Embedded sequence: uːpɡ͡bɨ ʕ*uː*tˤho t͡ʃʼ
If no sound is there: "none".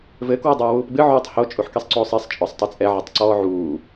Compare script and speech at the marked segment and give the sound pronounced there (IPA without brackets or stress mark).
uː